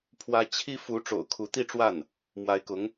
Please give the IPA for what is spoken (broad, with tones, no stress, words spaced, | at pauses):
pʰwä˥ t͡ɕʰi˥fu˧˥ ʈ͡ʂo̰˨˩ʊ̯kʰu˧˥t̪i˥˧ʈ͡ʂwa˥˩n | mwa˧˥ɪ̯kʊ˧˥ŋ